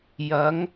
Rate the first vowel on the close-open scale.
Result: open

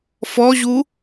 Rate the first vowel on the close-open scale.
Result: mid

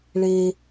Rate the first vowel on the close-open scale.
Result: mid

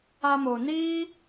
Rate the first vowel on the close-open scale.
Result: open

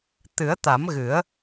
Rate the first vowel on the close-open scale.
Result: close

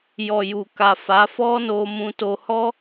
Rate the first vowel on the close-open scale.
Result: mid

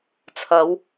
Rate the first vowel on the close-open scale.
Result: open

